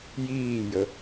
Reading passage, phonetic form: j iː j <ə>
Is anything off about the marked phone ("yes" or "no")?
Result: no